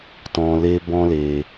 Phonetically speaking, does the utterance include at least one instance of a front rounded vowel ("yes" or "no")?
no